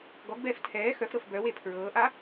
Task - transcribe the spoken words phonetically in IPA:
ɡɔɡbɛːf tʰɛː xœfɾɤf bœwe pʰɹɤːʔa

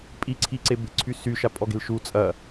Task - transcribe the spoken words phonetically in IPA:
pʼiǀʰi ǀebe̤ǀʰy syʃapʼɔ ɡe̤lʃu t͡sʼɐ

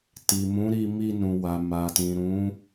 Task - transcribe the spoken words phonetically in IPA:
ti˨mũ˨˦ɾi˧ mi˧nũ˨wa˨ ma˨tĩ˨ ɾũ˨˦

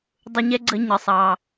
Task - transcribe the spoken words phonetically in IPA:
dˤʊ˧ɲɛ˥ɡ͡ǀə˧ ɲə˩sˤɑ˩

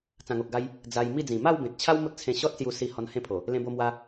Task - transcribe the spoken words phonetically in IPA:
t͡sã˨˩ŋo˨k̚ɡa˧j | d͡za˧j mi˥˧d͡zĩ˨˩ ma˥˧wbẽ˨t̚t͡ɕʰa˦w mo˦t̚t͡sʰẽ˧ ɕɔ˦t̚sju˧ si˧ hɔ˧nhẽ˥˧pʰo˨˩ | lẽ˧bo˧mwa˧

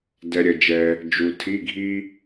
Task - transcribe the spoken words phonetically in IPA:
dɛ˨ ɾʲʌ˨d͡ʒɛ˨ | d͡ʒu˨tʰi˧˥˧ ɡʱi˥

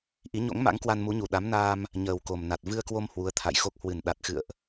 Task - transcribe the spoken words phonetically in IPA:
ʔi˨˦ɲo̰˧˥ŋ ma̰˧˥ŋkwa˧nmu˨˦ɲu˧˩ ɗa˨˦mnaː˧m | ɲəː˨˩wko˨˩mna˨˩t̚ vɨ˧ə̯kwo˧m hwu˨˦ə̯t̪ʰa̰˧˨jxo˦˥k̚ hwɨ˧˩nɗa˨˩t̚xɨ̰˧˨ə̯ʔ

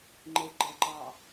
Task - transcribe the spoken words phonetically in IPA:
ŋ͡ǃeɡ͡ǃəǃɑ

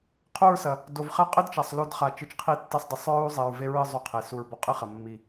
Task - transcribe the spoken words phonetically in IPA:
qʰu˦˨ɹsɐ˨ | do˨vχɛ˦ qʼɘ˦d t͡ʃa˨sˤ lo˦dχa˧ t͡ʃɨ˧t͡ʃqʰi˦tːɛ˦sˤdˤɨ˨sˤ ɹu˦zˤe˨ɹ ve˧ ɹɨ˦˨ zˤo˦qʰe˨su˧ɹ bɔ˧qʼɨ˦χɐ˨ mːi˨

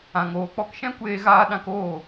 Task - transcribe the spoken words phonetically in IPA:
ã˨ŋoː˨k͡pɔ˧k ʃɛ̃˦kʷeː˧ɣaː˧ɗã˧k oː˦˨

